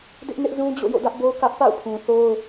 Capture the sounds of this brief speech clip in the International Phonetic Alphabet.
d ɪ˦ ʔ n ɪ˦ ʔ z ũ˦ d͡ʑ o̰˦˨ j o̰˦˨ d ä˦ ʔ b o˦ ʊ̯ k ä˦ ʔ p a̰˦˨ ʊ̯ pʰ ũ˨ θ o˦ ʊ̯

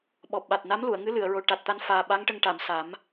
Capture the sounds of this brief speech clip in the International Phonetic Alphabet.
ɓ ɔ˨˩ p̚ ɓ a˨˩ t̚ n a˧˥ m l u˨˩˨ ə̯ ŋ ɨ˧˥ l ɨ˨˩˨ ə̯ ɹ o˨˩ ʈ a˨˩ t̚ t̪ a˧ n f aː˨˩ ɓ a˧˥ ŋ ʈ ə˧ ŋ ʈ a˨˩˨ m s a˨˩˦ m

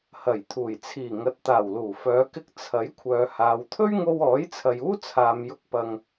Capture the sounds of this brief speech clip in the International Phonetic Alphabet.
h ɐ˨˩ j t̪ʰ uː˨˩ j t͡sʰ iː˨˩ ŋ ɐ˨ t̚ t̪ aː˨˩ w l uː˨˩ f œː˨˧ k ɪ˧ k̚ t͡sʰ ɐ˨˥ j kʷʰ œː˨ h aː˨˧ w t̪ʰ ɵ˥ ɥ ŋ o˧ w ɔː˨˥ j t͡sʰ ɐ˨ j uː˥ t͡sʰ aː˨ m j ʊ˧ k̚ p ɐ˧ ŋ

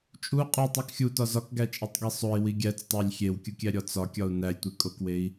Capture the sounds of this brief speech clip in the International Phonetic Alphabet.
t͡ʃʼ u qʼ u tˤ u k xʲ u t ɒ z ɒ k ɡ æ t͡ʃʼ i tˤ ɡ e sˤ o i̯ w i ɡʲ æ t͡s tˤ æ lʲ xʲ e w kʲ u kʲ æ ɾʲ ɒ t͡s ɒ kʲ ɒ u̯ n æ lʲ tʷ e kʼ o k w e i̯

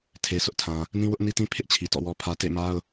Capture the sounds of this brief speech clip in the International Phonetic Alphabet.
tʰ e˨ sʰ ʊ˦ ʔ tʰ ã˨ | n ĩ˦ w ʊ˦ ʔ n i˦ t ĩ˦ pʰ ɪ˦ ʔ t͡ɕʰ i˨ t ɔ̰˦˨ w ɔ˦ pʰ ä˦ t ḛ˦˨ m a˦ ʊ̯

